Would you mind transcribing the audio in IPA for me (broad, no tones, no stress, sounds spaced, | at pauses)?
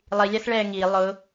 lˠ i lʲ a s ɭ ɛː ŋ i lˠ ʊ